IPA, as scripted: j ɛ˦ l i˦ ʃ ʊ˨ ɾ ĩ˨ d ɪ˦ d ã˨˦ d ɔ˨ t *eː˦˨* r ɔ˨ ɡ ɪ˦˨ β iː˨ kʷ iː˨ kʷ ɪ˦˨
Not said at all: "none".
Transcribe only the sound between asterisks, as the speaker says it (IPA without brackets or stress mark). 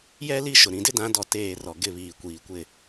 eː˦˨